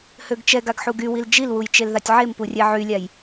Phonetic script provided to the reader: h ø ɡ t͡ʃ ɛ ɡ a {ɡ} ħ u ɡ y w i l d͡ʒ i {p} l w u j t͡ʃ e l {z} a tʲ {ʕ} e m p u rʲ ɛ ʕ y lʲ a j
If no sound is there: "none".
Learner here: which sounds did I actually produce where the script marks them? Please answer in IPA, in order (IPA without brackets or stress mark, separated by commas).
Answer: ɡ, none, ð, ʕ